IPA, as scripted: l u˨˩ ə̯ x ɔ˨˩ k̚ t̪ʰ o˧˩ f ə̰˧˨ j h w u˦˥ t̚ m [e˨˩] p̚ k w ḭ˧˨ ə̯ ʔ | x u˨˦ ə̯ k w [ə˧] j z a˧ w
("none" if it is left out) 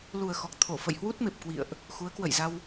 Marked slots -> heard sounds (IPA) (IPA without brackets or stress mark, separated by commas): e˨˩, ə̰˧˨